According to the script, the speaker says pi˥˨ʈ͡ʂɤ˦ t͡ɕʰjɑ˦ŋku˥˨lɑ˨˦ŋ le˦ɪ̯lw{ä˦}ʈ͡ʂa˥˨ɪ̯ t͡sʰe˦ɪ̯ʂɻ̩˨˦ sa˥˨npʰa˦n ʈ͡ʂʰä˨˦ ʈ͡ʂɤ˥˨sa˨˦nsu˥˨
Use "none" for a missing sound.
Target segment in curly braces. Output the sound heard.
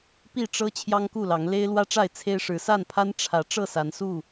ä˦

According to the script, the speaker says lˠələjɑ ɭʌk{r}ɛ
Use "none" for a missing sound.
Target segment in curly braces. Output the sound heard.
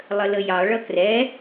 r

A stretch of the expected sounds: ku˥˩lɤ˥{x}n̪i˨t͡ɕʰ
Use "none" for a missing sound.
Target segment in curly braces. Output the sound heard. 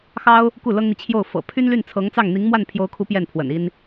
ŋ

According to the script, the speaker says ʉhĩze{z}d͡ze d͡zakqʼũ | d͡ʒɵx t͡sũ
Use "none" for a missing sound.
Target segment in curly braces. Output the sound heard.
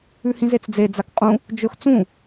t͡s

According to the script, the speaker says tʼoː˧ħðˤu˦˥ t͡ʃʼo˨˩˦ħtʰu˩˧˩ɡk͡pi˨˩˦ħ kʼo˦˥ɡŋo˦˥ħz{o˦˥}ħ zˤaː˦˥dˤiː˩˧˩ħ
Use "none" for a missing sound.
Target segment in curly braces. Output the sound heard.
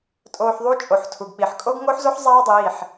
o˦˥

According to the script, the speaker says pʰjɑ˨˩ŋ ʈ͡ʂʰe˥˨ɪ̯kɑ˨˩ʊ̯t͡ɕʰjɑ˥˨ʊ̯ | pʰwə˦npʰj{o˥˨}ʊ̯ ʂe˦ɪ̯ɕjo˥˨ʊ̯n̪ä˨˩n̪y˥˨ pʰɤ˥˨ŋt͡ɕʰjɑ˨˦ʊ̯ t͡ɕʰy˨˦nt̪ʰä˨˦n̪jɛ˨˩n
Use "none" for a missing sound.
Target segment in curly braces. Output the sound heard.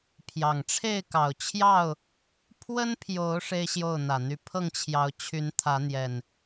o˨˦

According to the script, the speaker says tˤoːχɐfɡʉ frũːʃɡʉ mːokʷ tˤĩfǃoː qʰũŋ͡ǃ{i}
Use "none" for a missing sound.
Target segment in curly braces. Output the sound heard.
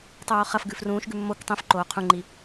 i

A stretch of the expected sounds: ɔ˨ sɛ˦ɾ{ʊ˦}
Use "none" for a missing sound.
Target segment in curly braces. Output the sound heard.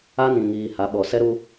u˦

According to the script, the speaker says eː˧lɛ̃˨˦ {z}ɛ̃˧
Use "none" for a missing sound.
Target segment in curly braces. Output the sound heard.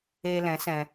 s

